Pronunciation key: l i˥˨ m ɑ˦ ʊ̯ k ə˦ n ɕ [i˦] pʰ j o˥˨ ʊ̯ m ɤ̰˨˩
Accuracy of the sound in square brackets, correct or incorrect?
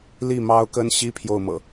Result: correct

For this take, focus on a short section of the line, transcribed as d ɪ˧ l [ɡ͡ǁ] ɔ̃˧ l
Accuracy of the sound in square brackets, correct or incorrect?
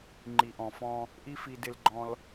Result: incorrect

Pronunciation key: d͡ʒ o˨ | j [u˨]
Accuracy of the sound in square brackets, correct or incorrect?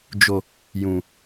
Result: incorrect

